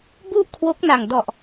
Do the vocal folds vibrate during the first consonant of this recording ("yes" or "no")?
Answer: yes